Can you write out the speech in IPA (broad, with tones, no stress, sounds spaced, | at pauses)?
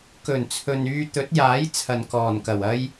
k ɵ˨˩ n t͡sʰ ɵ˨ n yː˧ t̪ ɵ˨˥ t̚ j aː˨˥ j t͡sʰ ɐ˨ n k ɔː˨˩ n k ɐ˨˩ w ɐ˥ j